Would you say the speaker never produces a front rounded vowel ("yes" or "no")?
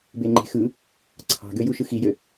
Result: no